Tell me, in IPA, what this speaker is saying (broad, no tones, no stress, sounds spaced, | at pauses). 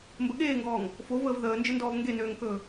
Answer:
m b ə ɠ eː ŋ ɡ ɔː ŋ | f o v əː v ð əː n d͡ʒ ə n d ɔː v ŋ ɡ e n øː ŋ k ɵː